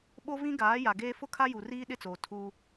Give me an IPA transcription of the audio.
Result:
ɓ o˦ v ĩ˦ ɡ aː˨˦ j a˨ ɡ eː˦ f ʊ˦ kʰ a˦ j u˨ r iː˦ ɗ ɪ˦ t͡s oː˨ tʰ u˦

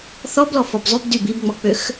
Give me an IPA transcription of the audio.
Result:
θ ɔ b l ɔ f ɔ b zˤ y b d y b i b ŋ͡m ɔ k͡p ø x

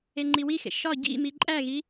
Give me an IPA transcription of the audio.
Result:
e ŋ͡ǃ i w i x ḛ ʃ ɒ ɟ ḭ m i ǃʼ æ ɣ i

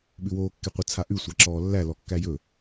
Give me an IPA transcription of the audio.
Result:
ɓ ʉ w oː kː e qʷ ə t͡sʰ a ʔ ʉ sʷ a ǁ ɔː lː æ l ɔ kː æ j ɵ

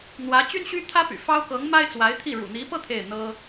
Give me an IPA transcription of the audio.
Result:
n̪ w ä˧˥ t͡ɕ y˥ n ɕ y˥ t̪ʰ ä˥ p y̰˨˩ f ɑ˥ ʊ̯ k ɤ˧˥ ŋ m a˥ ɪ̯ t͡s w a˧˥ ɪ̯ t̪ʰ i˥˩ ɻ ṵ˨˩ n̪ i˧˥ p ɤ˥˧ t̪ʰ e˥˩ ɪ̯ n̪ ɤ˥

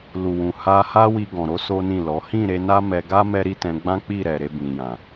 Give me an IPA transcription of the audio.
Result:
l u˨ w ũ˨ h a˧ h a˦ w i˧ ɡ ɔ̃˨ ɾ o˨˦ s o˦ n ĩ˦˨ l ɔ˨˦ h ĩ˦˨ ɾ e˨˦ n a˦ m ɛ˧ ɡ a˦ m ɛ˦ ɾ i˦ t ɛ̃˧ ɡ͡b ã˦ k͡p i˦˨ ɾ ɛ˨ ɾ e˧ b ĩ˨ j ã˨

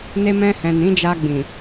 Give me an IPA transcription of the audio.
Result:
n e˧ m ɛ̃˧ h ɛ̃˨ n ĩ˨˦ d͡ʒ a˧ ɡ͡b ĩ˨

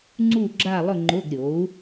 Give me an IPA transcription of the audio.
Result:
ŋ͡ǀ u˦˨ ɡ͡ǁ a˦˨ lˠ ʊ˦˨ ŋ͡ǃ ʊ˧˥˧ ɡ ɾʲ o˩˥ u̯

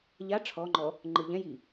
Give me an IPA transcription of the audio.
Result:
ʎ a ʈ͡ʂʰ ɔ ŋ͡ǃ ɔ | ŋ͡ǃ ɯ ʎ ɛ̃ j i

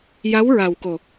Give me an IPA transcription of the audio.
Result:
j a˧˥ w ɹ a˨˩ w k o˨˩

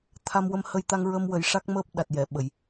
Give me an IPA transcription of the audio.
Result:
t̪ʰ a˧ m w ə˧ m h ə˧ j t̪ a˧ ŋ ɹ ə˧ m w ə˨˩˦ j ʂ a˦˥ k̚ m əː˦˥ p̚ ɗ a˨˩ t̚ j ɛ˨˩˨ ɓ ə˨˩˨ j

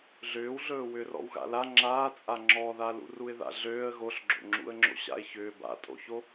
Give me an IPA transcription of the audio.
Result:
ɮ ʏː w ɮ ɵː w ʏː r ɔ̰ w ɣ a̰ l a ŋ͡ǁ aː t͡sʼ a ŋ͡ǁ ɔ ð a l ṵ r u ɪ̯ ð a̰ ɮ øː ə̯ ɣ o ɬ ɡ͡ǁ o̰ ŋ͡ǁ ṵ ə̯ ŋ͡ǁ o̰ ɕ a̰ ɪ̯ ç ʏː b a̰ tʼ o̰ ç o

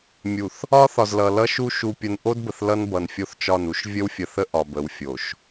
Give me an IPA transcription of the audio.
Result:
mʲ u˨ θ | ɒ˦ θ ɒ˨ z l ʌ˨ l ʌ˦ ʃ u˦ ʃ u˨ pʲ ə˨ n ʔ o˦ d b ə˨ θ l ʌ˦ n b ʌ˨ n fʲ o˦ θ t͡ʃ ɒ˦˨ n u˦ ʃ vʲ ə˦ w fʲ ə˨ θ ə˦ ʔ ɒ˨ b ə˨ w fʲ o˨ ʃ

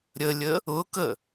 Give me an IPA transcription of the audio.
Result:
ɾʲ ə lʲ ə | ʊ k ə

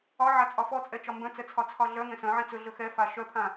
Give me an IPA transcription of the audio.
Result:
ɒ ʕ a t͡sʼ ɒ f ɔ t͡sʼ ɛ t͡ʃ ɒ m b œ̃ t͡s ɛ t͡sʰ ɒ t͡sʰ ɒ ɮ œ ŋ ɛ̃ s œ̃ ʕ ĩ t͡s ɵ ɮ ɵ x ɛ f a ʃ œ pʰ ã

